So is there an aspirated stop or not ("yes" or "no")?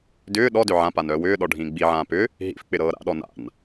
no